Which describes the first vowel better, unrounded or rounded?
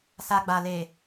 unrounded